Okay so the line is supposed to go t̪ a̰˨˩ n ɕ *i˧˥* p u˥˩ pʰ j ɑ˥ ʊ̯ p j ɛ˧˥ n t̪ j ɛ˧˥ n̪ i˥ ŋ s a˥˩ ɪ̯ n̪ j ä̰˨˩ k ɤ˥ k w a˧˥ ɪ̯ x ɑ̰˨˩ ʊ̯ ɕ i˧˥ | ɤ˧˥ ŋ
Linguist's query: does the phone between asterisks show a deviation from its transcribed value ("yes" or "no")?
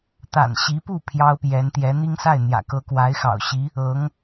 no